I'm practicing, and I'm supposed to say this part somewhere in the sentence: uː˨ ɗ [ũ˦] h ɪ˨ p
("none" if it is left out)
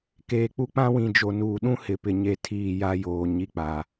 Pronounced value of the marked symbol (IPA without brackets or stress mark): ũ˦